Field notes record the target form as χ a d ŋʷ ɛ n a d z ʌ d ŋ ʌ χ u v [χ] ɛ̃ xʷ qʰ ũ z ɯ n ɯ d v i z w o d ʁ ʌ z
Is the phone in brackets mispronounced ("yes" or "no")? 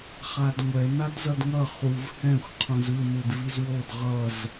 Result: yes